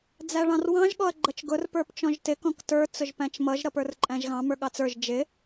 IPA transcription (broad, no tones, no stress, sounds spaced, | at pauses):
d͡z æ ɭ ɑ̃ r w ɑ̃ ʒ ɠ ɔ ɐ̯ ɡ͡ǃ ʌ t͡ʃ ɡ ʊ r p ə˞ p t͡ʃ ɔ̃ ʒ t ɪ k ɔ̃ k t ə˞ t͡s ʊ ʒ p æ̃ t͡ʃ m ʌ ʒ ɾ ʌ p ə˞ r ǃʼ æ̃ ʒ ɣ ɑ̃ m ə˞ ɠ ɑ t͡s ə˞ ʒ d͡ʒ ɪ